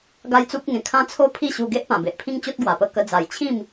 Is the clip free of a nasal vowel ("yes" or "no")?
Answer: no